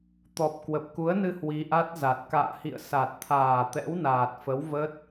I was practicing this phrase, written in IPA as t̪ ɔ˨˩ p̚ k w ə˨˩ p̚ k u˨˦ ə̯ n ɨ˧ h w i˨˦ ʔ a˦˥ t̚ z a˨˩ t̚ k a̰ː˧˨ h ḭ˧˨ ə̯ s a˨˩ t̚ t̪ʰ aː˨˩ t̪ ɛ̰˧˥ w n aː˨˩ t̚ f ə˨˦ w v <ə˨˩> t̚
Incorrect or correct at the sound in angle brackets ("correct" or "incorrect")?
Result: incorrect